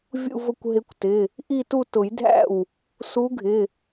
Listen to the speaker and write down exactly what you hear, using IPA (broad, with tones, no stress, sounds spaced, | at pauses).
vʲ ṵ˥˧ v ʊ˥˧ kʷ ɦ ɪ˧˥ kʷ t ɪ˩˧˩ | ʔ i˥˧ t u˥˧ t ʊ˨˩˦ j dʱ æ̰˥˩ w | s u˧˥ ɡʱ ɪ˩˧˩